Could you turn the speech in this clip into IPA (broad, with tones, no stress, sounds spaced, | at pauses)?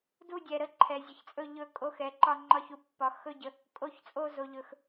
d u˧˩ dʲ ɛ˩ ɾ ə˧˩ ǃʰ ɛ˩ zʲ ə˩ ç t͡sʼ ɵ˧˩ ʎ ɵ˧˩ kʼ o˧˩ x ɛ˩ ǃ ɒ˧˩ ŋ͡ǃ ɒ˧˩ ç u˩ pː ɒ˩ x ɵ˧˩ ɟ ə˩ | kʼ o˧˩ ç t͡sʼ o˧˩ z o˩ ʎ ɵ˩ x